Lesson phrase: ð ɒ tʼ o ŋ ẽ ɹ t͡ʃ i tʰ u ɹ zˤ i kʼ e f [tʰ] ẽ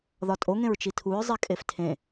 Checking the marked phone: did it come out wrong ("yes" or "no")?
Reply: no